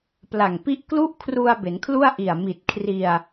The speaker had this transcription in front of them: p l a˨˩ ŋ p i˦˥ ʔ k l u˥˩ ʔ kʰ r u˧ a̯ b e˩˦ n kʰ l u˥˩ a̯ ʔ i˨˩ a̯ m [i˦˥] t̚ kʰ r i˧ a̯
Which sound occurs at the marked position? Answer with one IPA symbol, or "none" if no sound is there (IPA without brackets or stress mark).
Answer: i˨˩